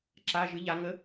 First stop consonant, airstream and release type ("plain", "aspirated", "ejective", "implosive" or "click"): click